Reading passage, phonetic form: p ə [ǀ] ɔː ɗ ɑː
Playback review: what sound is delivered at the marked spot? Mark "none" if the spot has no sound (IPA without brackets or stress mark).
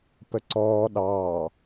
ǀ